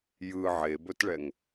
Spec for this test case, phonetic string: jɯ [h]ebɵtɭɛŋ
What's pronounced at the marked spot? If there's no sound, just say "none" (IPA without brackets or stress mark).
ʕ